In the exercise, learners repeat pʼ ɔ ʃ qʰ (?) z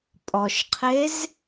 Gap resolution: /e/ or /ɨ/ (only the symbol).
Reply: e